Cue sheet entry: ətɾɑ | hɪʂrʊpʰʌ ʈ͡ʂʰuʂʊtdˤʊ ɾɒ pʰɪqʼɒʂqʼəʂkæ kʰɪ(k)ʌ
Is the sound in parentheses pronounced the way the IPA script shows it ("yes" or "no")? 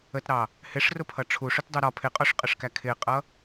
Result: no